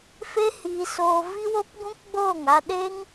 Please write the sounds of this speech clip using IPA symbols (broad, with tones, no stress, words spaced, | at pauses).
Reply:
fe˦hiː˧soː˧ vi˦wo˦p ɡũ˦kɡ͡boː˦˨ŋ a˧ɗe˦ŋ